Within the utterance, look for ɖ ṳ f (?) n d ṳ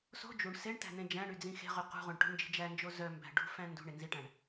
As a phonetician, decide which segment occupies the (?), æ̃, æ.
æ̃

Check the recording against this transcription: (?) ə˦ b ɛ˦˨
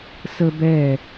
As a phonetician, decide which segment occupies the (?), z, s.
s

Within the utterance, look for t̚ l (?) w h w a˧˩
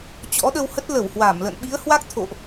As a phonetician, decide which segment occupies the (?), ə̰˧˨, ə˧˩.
ə˧˩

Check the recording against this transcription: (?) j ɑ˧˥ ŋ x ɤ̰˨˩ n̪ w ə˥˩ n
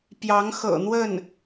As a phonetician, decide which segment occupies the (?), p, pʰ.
p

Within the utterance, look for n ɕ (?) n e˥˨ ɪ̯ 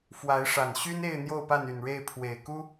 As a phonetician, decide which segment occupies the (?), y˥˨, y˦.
y˦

